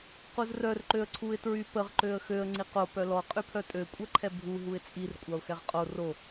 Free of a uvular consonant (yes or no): no